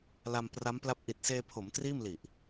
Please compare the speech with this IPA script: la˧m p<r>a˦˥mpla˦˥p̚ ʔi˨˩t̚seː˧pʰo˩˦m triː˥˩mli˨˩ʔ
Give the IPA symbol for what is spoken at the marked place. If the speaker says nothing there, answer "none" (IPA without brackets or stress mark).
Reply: r